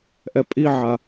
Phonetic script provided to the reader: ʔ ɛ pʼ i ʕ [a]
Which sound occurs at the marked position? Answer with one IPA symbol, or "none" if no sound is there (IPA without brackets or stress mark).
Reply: a